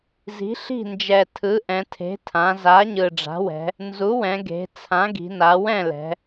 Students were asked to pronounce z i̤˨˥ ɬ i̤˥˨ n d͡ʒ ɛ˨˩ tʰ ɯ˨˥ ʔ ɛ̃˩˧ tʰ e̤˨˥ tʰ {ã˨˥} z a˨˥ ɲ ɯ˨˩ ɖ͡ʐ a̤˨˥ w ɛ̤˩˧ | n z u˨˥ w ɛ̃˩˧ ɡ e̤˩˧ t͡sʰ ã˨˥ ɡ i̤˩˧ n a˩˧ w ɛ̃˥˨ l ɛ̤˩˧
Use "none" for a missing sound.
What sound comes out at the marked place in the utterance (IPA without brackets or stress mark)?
ã˩˧